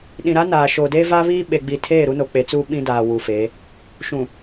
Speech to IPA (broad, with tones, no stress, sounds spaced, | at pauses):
ɗ ĩ˨ ɾ a˦ n aː˨ ʃ oː˨ d eː˦ v a˦ β i˦ ɓ e˨ ɡ͡b i˨ tʰ eː˦˨ ɾ u˦ n o˨ k͡p e˨˦ t͡s uː˦ ɓ ĩ˦ d aː˨ w u˨ f e˨˦ | ʃ ũ˨